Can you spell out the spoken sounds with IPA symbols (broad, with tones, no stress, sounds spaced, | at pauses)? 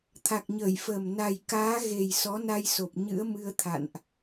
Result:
t̪ʰ a˨˩ k̚ ɲ əː˧˩ j f əː˨˩ m n a˨˩ j k aː˨˦ ɣ e˨˩ j s ɔ˨˦ n a˧ j s o˨˩ p̚ ɲ ɨ̰˧˥ ə̯ m ɨ˧ ə̯ t̪ʰ a̰˧˨ n ʔ